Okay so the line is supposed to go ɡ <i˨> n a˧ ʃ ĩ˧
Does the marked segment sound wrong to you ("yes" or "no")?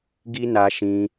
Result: yes